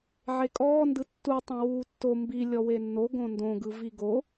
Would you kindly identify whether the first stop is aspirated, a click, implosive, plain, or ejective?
ejective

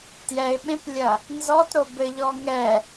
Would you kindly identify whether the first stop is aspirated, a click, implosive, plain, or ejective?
plain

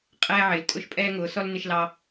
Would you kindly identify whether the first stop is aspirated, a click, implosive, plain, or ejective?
ejective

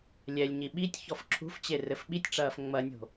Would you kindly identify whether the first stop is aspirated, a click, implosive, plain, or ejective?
implosive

